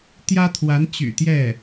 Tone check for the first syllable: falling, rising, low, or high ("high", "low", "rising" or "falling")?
high